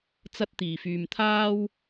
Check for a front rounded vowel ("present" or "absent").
present